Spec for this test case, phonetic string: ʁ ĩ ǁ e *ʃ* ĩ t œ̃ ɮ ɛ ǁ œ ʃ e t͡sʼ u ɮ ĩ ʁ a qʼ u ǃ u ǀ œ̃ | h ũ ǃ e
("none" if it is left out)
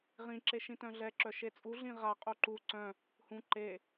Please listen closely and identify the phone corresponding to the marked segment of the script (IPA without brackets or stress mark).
ʃ